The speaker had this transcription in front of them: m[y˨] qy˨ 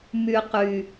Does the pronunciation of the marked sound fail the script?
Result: no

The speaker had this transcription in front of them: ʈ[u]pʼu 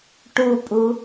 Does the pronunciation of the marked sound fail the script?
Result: no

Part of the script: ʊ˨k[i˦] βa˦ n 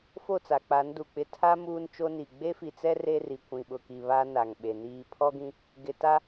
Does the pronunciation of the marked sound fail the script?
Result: yes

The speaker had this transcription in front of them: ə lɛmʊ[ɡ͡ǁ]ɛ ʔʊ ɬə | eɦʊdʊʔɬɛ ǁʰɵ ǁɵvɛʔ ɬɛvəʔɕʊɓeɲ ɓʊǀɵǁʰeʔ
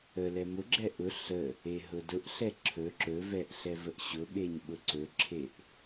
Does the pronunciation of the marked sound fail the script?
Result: no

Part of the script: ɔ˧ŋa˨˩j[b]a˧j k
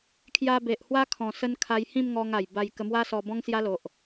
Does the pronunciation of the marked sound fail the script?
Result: no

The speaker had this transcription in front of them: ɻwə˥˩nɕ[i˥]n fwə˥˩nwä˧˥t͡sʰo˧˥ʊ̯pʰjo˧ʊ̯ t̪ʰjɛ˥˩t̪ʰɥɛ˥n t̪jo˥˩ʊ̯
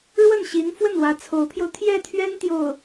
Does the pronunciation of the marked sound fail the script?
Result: yes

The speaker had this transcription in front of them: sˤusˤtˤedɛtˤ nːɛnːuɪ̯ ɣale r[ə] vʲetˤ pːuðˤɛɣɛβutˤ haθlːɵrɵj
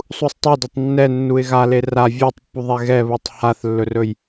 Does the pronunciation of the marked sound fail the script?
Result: yes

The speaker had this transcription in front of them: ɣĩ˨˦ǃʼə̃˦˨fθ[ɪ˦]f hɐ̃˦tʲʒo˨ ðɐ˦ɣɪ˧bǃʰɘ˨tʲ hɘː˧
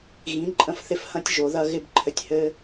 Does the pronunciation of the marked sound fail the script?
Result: no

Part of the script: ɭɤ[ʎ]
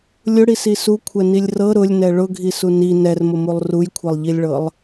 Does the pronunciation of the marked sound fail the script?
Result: yes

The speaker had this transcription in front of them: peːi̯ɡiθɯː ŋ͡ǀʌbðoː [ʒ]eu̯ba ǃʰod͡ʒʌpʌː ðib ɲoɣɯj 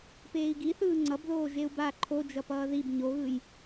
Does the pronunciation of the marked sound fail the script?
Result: no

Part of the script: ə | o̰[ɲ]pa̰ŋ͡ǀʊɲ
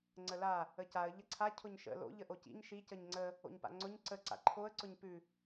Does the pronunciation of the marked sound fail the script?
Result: no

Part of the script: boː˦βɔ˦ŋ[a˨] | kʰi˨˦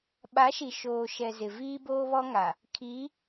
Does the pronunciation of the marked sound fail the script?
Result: no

